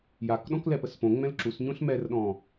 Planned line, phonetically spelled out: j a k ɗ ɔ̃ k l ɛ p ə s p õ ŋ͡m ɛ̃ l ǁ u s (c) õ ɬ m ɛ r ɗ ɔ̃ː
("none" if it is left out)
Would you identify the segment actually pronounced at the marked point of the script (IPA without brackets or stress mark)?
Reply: ɲ